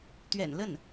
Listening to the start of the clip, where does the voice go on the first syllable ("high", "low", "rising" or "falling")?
low